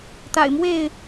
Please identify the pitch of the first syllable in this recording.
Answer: low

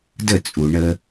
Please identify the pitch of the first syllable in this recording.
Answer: falling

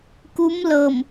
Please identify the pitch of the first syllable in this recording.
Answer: rising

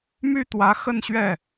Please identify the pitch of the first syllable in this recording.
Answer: falling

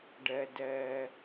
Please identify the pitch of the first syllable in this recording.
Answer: low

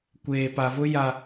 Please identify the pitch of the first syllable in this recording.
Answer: low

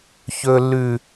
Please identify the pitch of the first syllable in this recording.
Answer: high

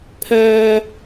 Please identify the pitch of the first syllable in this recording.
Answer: high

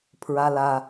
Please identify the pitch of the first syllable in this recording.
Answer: low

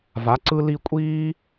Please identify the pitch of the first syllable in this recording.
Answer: rising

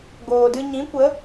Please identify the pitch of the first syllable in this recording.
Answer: low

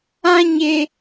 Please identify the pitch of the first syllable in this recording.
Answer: high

